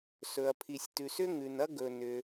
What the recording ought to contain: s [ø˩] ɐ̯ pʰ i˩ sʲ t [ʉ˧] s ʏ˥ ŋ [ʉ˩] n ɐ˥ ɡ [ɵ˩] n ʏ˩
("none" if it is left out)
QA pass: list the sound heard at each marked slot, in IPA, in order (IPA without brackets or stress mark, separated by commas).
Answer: ɵ˩, ʉ˩, ʉ˩, ɵ˩